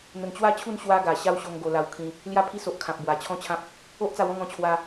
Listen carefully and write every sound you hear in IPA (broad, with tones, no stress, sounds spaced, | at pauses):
n̪ ə˨˩ n t͡ɕ w a˥˧ t͡ɕʰ u˥˧ n ɕ w a˦ ɡ a˨˩ ɕ a˥˧ w ɕ o˧ ŋ ɡ o˧ l a˧ w kʰ ĩ˧ | l j a˥˧ pʰ i˦ s o˨ ʔ kʰ ã˨ p̚ b w a˨˩ t͡ɕʰ ɔ̃˦ t͡ɕʰ ã˦ p̚ | o˦ ʔ t͡s a˧ w ɔ̃˥˧ ŋ ɔ̃˧ t͡ɕʰ w a˧